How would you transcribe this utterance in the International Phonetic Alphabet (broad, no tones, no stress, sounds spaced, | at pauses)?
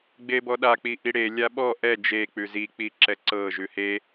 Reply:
ɡ͡b e b ɔ ɗ a k͡p i ʔ i ɽ e lʲ a ɓ ɔ ʔ ɛ d͡ʒ e k͡p ʉ z i k͡p i ǁ ɛ ǀ ɤ ʒ ʉ h e